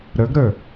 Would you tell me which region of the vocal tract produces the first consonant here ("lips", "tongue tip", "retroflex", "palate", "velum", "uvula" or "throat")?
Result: tongue tip